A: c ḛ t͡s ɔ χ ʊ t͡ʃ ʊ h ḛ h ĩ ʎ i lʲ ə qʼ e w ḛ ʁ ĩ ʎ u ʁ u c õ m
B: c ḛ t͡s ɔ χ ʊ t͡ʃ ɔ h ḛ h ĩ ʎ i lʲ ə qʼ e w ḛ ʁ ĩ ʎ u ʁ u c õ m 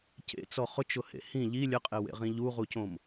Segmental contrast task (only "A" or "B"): A